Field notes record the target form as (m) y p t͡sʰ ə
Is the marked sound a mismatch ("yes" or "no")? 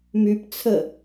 no